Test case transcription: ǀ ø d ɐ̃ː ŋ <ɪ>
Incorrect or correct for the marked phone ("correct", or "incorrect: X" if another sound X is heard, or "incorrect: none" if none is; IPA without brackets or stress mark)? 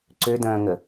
incorrect: ə